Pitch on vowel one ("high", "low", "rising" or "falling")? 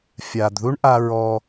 low